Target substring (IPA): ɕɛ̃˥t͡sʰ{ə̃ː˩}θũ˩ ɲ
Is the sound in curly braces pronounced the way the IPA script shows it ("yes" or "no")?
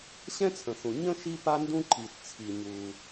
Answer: no